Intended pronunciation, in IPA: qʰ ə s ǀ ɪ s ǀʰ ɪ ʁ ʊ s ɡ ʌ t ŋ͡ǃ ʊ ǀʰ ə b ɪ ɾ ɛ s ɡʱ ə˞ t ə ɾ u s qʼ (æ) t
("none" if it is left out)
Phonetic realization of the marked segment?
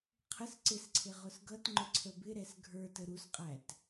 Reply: æ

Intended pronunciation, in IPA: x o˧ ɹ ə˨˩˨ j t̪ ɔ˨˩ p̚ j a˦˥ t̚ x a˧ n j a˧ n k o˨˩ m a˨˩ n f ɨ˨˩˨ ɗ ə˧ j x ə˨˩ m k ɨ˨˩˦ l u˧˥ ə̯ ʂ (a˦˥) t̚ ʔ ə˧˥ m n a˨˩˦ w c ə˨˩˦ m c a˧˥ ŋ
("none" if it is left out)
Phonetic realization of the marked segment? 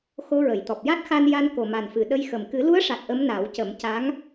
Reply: a˨˩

